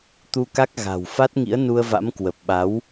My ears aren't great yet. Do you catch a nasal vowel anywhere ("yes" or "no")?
no